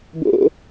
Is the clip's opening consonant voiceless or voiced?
voiced